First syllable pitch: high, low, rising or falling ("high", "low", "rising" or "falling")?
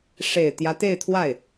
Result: low